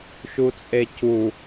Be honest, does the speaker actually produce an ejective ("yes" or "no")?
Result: yes